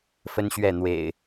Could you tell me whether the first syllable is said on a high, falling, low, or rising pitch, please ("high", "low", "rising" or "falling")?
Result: high